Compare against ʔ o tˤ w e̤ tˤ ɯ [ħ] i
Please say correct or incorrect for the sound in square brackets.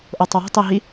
incorrect